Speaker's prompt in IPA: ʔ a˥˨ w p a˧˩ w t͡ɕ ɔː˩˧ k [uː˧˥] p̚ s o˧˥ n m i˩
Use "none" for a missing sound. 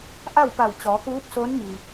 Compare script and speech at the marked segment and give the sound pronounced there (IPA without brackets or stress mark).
uː˧˥